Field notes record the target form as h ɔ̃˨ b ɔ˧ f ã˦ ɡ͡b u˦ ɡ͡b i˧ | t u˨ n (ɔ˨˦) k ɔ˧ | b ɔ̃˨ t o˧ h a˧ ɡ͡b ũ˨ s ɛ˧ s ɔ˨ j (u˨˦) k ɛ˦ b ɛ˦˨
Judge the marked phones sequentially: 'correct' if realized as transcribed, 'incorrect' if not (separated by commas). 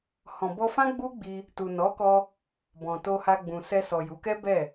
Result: correct, correct